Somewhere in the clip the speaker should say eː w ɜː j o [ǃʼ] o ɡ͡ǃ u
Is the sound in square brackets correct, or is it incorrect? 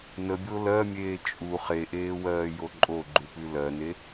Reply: correct